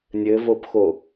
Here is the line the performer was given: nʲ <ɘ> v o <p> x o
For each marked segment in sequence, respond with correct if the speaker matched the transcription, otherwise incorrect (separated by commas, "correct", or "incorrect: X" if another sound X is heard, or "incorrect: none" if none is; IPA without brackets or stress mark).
correct, correct